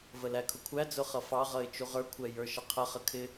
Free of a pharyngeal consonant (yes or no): yes